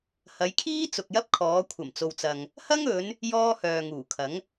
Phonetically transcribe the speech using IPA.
h ɐ˨˧ j kʰ iː˥ t͡s ʊ˨ k̚ j ɐ˥ p̚ kʰ ɔː˨˧ kʷʰ ɐ˨˩ m t͡s o˨ w t͡s ɐ˨ ŋ | h ɐ˥ ŋ ɵ˨˧ n | j ɔː˥ h œː˨ ŋ uː˨˩ kʰ ɐ˨˥ ŋ

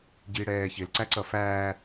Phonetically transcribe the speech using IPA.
ɟ i ɽ ɛː ç ɪ l ǀ æ ǀ ʌ f æː

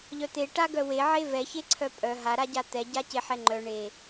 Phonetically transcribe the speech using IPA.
ʎ œ t̪ e ʈ a ɡ œ w e ʕ e v ɛ ç e ǀʰ œ pʼ œ ɦ a ɾ a ɟ a t̪ ɛ ɟ a c e ħ ɛ ŋ͡ǃ œ ɳ e

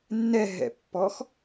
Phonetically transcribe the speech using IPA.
nː ɛ ɦ ɛ̰ pː ɔ x

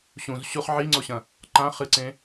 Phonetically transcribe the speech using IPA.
ɕ ũ z ɕ u χ ʕ i ŋ͡ǀ o ɕ ɐ̃ | ǃ ã χ ɨ ǀ ẽ

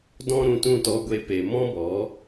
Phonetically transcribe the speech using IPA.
d ɔ̃˦ ɾ ũ˧ t ũ˦˨ t ɔ˧ ɡʷ e˦ p e˧ m ɔ̃˦ b ɔ˨˦

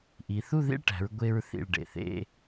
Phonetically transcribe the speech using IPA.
ʔ i˩˧ θ u˥˧ ð ḭ˥˧ ɭ ʈ æ̤˩˧ ɹ ɡʷ e˧ ɹ θ ḭ˧˩ ɭ ɖ ḛ˧˩ θ ḛ˥˧

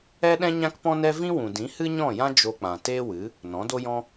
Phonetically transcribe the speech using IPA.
ɛ˦ ɗ ɛ̃˦ ɲ ã˦ k p ɔ̃˦ n ɛ˦ v ĩ˦ w ũ˨ d ĩ˨˦ h ɨ˦ ɲ ɔ̃˦˨ j ã˦ d͡ʒ o˧ k͡p ã˨ t eː˦ w ɨ˨˦ | n ɔ̃˨˦ d o˦ j ɔ̃˦

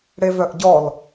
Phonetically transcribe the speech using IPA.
ɽ e v œ ʔ ɟ ɔ l

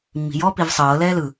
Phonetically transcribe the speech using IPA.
mː i̤ j ɔ p i v sˤ ɤː l ɛː l ɯ

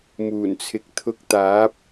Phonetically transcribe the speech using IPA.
m uː˨˩ n t͡sʰ ɪ˨ k̚ t̪ʰ ʊ˧ k̚ t̪ aː˨˥ p̚

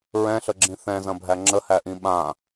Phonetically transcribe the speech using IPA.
ɹ ɛ̃ ɬ ə ɡ͡ǁ ĩ θ ɛ̃ z ɐ̃ bʱ æ ŋ͡ǁ ə h æ ʔ ĩ ɓ ã

